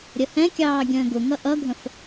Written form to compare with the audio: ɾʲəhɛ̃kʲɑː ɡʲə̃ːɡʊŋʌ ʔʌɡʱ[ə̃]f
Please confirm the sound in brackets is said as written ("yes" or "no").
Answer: yes